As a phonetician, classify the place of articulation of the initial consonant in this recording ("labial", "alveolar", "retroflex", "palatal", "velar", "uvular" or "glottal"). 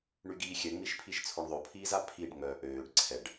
retroflex